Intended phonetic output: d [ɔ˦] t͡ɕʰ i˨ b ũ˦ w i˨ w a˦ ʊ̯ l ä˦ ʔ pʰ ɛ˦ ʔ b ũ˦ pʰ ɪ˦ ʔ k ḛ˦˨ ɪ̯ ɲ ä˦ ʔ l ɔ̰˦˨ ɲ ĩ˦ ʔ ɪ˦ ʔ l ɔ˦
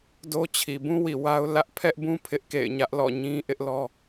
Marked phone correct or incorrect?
incorrect